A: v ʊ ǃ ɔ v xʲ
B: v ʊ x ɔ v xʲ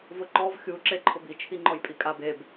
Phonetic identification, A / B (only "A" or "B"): A